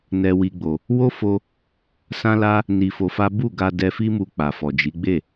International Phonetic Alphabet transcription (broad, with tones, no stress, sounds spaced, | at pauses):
n ɛ˦ w i˦ ɡ͡b o˧ | w o˦ f o˧ | s ã˦ l a˦ | n i˧ f o˧ f a˦ b u˦˨ ɡ a˧ d ɛ˧ f i˦ m u˧ k͡p a˨ f ɔ˨ d͡ʒ i˨˦ ɡ͡b e˦˨